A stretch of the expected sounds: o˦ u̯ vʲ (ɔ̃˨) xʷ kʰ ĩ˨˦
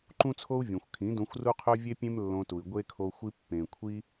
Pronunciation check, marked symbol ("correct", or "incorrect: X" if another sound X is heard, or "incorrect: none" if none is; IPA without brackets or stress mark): incorrect: õ˨